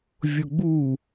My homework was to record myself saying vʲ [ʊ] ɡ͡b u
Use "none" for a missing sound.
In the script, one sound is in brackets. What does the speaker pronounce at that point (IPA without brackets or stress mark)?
ʊ